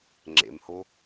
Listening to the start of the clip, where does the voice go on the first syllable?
low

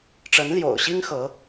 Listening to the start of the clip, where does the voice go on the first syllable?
rising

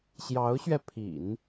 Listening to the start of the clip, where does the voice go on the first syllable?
rising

